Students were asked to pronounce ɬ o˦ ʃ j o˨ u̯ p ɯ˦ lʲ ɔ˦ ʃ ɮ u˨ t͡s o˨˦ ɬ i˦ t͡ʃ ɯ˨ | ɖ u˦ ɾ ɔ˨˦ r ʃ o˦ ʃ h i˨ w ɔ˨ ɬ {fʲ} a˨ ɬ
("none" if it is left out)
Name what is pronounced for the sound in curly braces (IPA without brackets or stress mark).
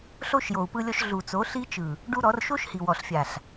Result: fʲ